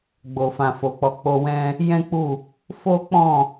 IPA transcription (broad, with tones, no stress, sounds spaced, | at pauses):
ɡ͡b o˨ f ã˨ f o˨ k͡p ɔ˨˦ k͡p o˧ w ɛ̃˦ | j ɛ̃˦ k͡p u˦˨ | f o˦ k͡p ɔ̃˦˨